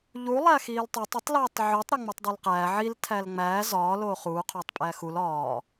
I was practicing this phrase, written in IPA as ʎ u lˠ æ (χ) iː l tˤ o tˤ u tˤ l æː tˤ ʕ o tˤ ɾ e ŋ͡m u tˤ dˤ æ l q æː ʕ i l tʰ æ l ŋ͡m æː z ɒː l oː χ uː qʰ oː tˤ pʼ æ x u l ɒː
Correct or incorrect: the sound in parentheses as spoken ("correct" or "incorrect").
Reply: incorrect